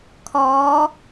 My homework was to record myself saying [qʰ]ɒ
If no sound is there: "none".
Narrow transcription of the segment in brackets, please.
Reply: kʰ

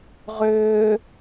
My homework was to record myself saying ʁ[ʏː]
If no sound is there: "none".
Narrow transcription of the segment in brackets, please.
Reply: ʏː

